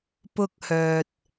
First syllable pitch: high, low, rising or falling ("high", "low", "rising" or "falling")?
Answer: high